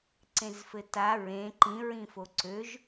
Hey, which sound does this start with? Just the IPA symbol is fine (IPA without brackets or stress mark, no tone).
ǀ